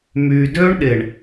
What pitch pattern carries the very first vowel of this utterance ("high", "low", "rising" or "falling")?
low